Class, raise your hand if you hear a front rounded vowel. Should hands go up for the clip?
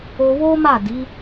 no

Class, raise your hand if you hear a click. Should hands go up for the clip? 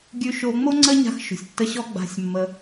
yes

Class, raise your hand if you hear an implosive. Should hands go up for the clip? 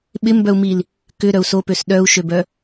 yes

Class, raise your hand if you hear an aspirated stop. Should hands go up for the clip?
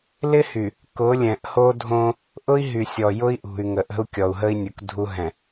no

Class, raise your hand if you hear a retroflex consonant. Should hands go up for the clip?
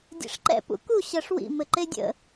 yes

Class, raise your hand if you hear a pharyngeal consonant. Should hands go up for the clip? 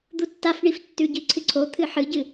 yes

